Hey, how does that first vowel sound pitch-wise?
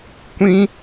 high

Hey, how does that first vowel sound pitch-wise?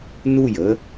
falling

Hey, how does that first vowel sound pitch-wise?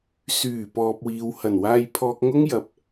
low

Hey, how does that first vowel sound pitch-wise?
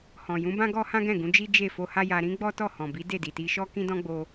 low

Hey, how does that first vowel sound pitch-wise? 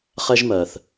high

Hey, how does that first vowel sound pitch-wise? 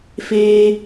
high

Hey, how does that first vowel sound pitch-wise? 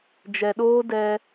low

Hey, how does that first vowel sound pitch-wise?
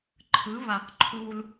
rising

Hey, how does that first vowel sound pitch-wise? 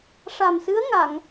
low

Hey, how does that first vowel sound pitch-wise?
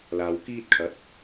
low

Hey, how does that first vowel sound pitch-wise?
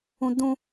high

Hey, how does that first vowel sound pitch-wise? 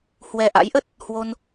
low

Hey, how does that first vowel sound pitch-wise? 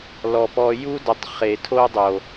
low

